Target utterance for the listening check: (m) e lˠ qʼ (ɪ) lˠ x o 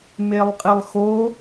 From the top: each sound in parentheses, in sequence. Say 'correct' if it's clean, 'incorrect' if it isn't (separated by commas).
correct, correct